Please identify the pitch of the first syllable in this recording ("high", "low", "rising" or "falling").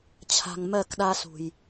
low